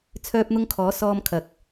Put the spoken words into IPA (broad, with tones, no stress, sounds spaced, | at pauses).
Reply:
t͡sʰ œː˥ p̚ n̪ ʊ˥ ŋ kʰ ɔː˨˥ s ɔː˥ m kʰ ɐ˨˥ k̚